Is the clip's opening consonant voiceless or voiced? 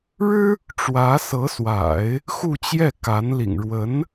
voiced